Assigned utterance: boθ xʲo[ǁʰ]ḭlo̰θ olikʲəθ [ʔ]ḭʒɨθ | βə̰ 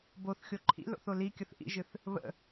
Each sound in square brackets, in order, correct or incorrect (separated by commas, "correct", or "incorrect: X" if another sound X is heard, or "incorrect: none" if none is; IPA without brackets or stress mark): incorrect: ǃʰ, correct